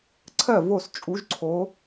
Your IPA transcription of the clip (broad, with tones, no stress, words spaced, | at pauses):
ǀʰɜ˥˨vo˥˨s t͡ʃʼu˧˥ʒǀʰo˧˥